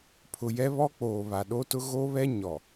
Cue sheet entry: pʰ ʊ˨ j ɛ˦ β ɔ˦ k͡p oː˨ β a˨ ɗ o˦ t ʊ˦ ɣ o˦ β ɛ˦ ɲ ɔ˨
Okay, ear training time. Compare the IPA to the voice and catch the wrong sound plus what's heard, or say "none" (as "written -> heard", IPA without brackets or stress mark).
none